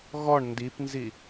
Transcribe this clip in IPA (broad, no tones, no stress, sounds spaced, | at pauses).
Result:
ɣ ɔ ɳ n d i p n z i